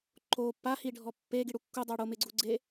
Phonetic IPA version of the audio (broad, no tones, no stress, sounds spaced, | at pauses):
ǃ o pː a h i ɖʱ ɔ pː e ɡ i ɽ u kː u dˤ a ɽ o m ɪ ɡ͡ǀ u ɡ͡ǀ e